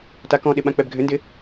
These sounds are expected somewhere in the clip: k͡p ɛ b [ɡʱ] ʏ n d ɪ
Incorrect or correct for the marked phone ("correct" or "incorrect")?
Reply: correct